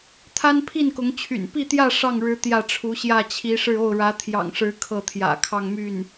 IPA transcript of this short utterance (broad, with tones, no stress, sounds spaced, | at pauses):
t̪ʰ a˥ n pʰ i˥˩ n k ʊ˧˥ ŋ t͡ɕʰ y̰˨˩ n p i˥˧ t̪ j ä˥˧ ʂ ɑ˥˩ ŋ ɻ ɻ̩˧˥ t̪ j ä˥˩ ʈ͡ʂʰ u˧˥ ɕ j ä˥˩ t͡ɕʰ i˧˥ ʂ ɻ̩˥˧ o˥˩ ʊ̯ ɻ ä˧˥ t̪ʰ j ɑ̰˨˩ ŋ ʂ ɻ̩˧˥ kʰ ɤ˥˩ t̪ʰ j ä̰˨˩ kʰ ɑ˥˧ ŋ m y˥˩ n